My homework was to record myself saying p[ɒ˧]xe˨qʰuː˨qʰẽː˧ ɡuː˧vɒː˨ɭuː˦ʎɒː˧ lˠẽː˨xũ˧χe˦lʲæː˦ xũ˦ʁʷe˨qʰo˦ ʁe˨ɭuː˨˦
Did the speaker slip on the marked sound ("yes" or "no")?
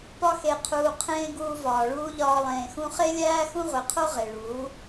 no